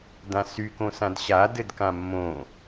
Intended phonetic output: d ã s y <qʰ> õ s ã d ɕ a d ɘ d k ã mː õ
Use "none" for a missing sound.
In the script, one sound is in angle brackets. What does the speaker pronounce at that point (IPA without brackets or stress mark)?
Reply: k